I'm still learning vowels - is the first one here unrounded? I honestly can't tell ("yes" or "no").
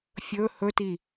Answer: no